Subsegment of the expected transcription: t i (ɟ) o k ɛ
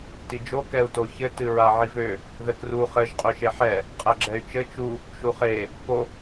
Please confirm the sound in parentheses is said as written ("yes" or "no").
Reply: no